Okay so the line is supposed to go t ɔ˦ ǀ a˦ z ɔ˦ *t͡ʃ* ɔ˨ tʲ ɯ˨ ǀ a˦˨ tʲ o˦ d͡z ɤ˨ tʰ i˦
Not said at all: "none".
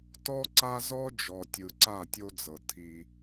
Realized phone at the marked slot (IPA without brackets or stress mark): d͡ʒ